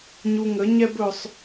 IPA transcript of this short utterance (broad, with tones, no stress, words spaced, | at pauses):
ɲu˧ŋə˨˦ɲɛ˦b ɵ˧sˤ